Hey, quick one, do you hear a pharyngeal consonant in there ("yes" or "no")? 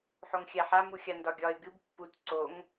yes